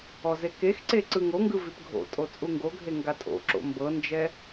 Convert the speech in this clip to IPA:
ɔzekexǀe ǀɯŋoŋɡɯ vipɡʱo̰tʼo t͡sʼuŋɡoɡʱe ŋɡatʼo̰ǁo̰ mbɤnd͡ʒɛ

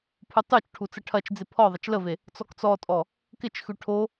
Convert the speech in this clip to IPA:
pʰutˤut͡ʃʈʰu t͡səʈʰɐt͡ʃd͡zɪ pʰɔ ðˤət͡ʃləve | t͡sɔkt͡sɔtʼɔ | kɪt͡ʃxʉ ʈʰo

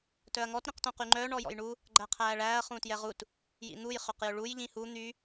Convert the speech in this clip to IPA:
tœɐ̯ŋɔt ɾĩqtõqyŋ͡ǃœ ɳɔjɔ̰jɳu | ɡ͡ǃæqʰæːɭæːɐ̯ χũtjɛʁut | jḭn̪uj χʏqjʏɭuj ʎĩhu n̪y

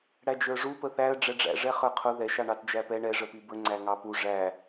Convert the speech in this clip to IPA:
ɽæd͡ʒə˞ʐu pəθæə̯ ɖ͡ʐɛɖ͡ʐæ̰ ʐɛχə˞qʰʊ ðɛʃ ɑɳɑtd͡ʒæpɛ ɳɛ ʐəpibə ŋ͡ǀæŋɑpu ʐæ

